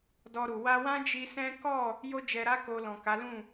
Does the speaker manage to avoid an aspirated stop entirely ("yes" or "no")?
yes